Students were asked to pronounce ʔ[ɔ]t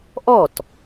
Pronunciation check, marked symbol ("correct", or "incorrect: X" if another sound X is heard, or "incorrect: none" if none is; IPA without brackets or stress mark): correct